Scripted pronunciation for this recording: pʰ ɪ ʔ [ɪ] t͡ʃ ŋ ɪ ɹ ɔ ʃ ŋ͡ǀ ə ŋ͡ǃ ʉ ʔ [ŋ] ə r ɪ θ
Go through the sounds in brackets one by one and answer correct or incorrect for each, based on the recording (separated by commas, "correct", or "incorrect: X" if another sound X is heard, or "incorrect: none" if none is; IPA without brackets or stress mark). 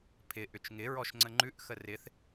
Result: incorrect: ʏ, incorrect: x